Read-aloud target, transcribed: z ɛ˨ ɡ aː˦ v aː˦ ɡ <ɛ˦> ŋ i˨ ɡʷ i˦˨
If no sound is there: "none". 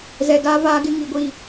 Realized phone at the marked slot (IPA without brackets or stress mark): ɪ˦